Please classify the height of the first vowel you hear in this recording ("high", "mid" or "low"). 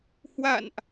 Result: low